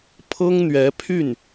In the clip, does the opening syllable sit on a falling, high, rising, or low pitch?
high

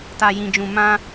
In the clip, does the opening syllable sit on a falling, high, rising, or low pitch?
low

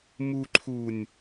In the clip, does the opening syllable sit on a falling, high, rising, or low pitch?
low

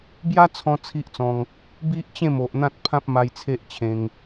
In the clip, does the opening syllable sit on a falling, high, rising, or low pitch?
high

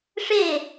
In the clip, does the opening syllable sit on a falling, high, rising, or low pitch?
falling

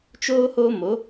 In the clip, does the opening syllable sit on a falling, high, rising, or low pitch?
high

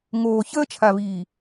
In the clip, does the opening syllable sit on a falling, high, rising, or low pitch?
low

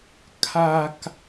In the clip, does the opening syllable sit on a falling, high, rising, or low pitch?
low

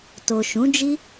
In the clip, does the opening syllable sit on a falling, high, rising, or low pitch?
low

